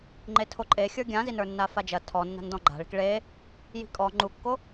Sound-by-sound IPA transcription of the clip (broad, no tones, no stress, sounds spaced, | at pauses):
ŋ͡ǃ e tʰ o ǃʼ e xʲ ə˞ ɡʲ ã z i n ə˞ nː a f a d͡ʒ ɐ tʰ ɔ nː a̤ n d ɔ̃ ɡ͡ǃ a̤ ɭ i̤ k ɭ e | j i̤ kʼ ɔ ŋ͡ǃ u kː o